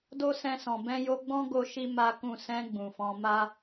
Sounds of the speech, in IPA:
d o˦ s ɛ̃˧ s ɔ̃˨ b ɛ̃˧ j o˧ ɡ͡b ɔ̃˦ ɡ o˦ ʃ i˦ m a˦ k ũ˦˨ s ɛ̃˧ ɡ͡b ũ˨ f ɔ̃˨˦ m a˦

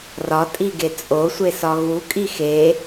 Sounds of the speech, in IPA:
r ɒ tʼ i ɡ e t͡sʼ o sʷ e s ɒ ɣ u kʼ i x e

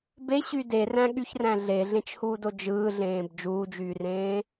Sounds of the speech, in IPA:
b e ɕ y d e r æ̃ ɠ y ç r æ̃ ɮ e ɮ ẽ t͡ʃ h uː d o d͡ʒ ɯː ɮ ẽː b d͡ʒ uː d͡ʒ yː r ẽː

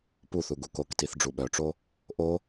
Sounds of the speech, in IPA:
p u θ u ɡ u k o k t i θ ɖ͡ʐ u ɓ œ ʈ͡ʂ o | ʔ o

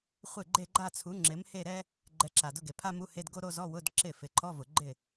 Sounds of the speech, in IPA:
χʷ ɪ˥˩ ɡ͡ǃ e˥˧ ɡ͡ǃ a˥˧ t͡sʰ u˨˥ ŋ͡ǁ ɪ˨˥ m h e˥˧ ɾ ɛ˥ | ɡ͡ǃ ɛ˨˥ ǁ a˩ d ʊ˧˥˧ ɡ e˩ pʰ a˥ m u˧˥˧ h e˧˥˧ d ɡ o˥ ɾ o˥˧ z ɔ˧˥˧ w ʊ˧˥˧ d ǁ ɪ˥˩ f ɪ˩ ǃʰ ɔ˧˥˧ v ʊ˩ ɡ͡ǃ ɪ˥˩

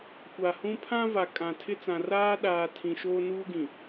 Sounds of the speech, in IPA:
kʷ a˨ h ũ˦ pʰ ã˦ v a˨ kʼ ã˨ tʰ ɪ˦ t͡s ã˨ r aː˦ ɗ aː˨ tʰ ĩ˨ ʃ oː˦ n uː˦ ɡ ĩ˨

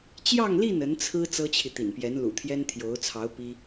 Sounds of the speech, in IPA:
t͡ɕ j ɑ˥˧ ŋ l i˥˩ n ə˧˥ n t͡sʰ ɹ̩˥ t͡s ɤ˥ t͡ɕʰ i˨ t̪ ḭ˨˩ n p j ɛ˧˥ n l ṵ˨˩ t̪ʰ j ɛ˥ n t̪ʰ j o˧˥ ʊ̯ t͡sʰ ɑ˧˥ ʊ̯ p i˥

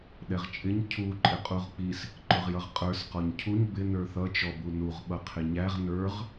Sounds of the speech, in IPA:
ɗ ɛ ʁ t͡ʃʼ ɪ ɲ cʰ u ǃʼ ɪ qʼ u ʁ k͡p i s | ǃ ʊ ʁ j ʌ ʁ qʼ ə˞ s q ɔ ɲ cʰ u ɲ b ɪ n ə˞ θ ʌ t͡ʃ ɔ b u n u ʁ ɓ ʌ qʰ ɪ ɲ æ ʁ n ə˞ ʁ

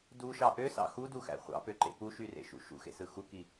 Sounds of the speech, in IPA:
d u ʃ ɑ ʔ ø s ɑ̰ x u d u x æ̰ χʷ ɑ̰ p ø ǃ ḛ p u ʃ y r ḛ ʃ ṵ ʃ ṵ x ḛ s ɯ x u k i

